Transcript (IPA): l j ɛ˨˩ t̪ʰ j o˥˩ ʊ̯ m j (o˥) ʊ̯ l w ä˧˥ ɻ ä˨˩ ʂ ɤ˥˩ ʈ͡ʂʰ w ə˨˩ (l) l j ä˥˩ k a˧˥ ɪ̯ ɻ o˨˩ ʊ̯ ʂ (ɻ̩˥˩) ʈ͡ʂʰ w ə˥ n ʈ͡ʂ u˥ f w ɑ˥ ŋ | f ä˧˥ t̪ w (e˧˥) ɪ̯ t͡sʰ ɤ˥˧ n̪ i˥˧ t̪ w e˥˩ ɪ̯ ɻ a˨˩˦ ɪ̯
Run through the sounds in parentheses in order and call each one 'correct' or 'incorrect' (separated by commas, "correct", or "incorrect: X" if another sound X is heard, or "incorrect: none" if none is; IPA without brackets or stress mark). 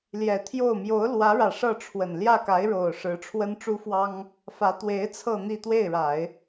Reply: incorrect: o˧˥, incorrect: n, incorrect: ɻ̩˧˥, correct